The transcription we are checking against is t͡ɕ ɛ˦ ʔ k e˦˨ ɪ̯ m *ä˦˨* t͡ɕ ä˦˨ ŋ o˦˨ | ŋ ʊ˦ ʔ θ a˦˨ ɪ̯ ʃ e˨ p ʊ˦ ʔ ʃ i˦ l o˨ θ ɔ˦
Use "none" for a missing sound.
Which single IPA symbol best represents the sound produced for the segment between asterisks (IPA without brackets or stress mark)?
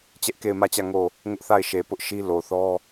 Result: ä˦˨